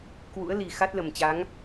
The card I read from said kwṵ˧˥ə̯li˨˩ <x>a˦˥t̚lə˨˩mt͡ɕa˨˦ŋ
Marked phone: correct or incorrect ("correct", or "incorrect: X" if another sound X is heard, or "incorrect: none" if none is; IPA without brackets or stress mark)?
correct